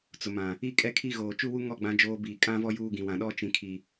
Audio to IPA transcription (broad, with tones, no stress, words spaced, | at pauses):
t͡sʊ˨mã˨ | i˦kʼɛ˦kʰi˦ ɣoː˨t͡ʃu˦wu˦ŋɔ˦˨ ɡ͡bã˦d͡ʒoː˦ biː˨kʼã˦vɔ˦ juː˦ɡĩ˨wã˨ ɗɔ˦t͡ʃĩ˨ kʰi˨